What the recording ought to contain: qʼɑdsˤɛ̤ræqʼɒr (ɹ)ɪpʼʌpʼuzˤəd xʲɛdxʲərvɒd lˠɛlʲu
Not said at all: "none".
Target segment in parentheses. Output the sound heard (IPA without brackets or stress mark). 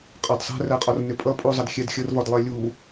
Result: n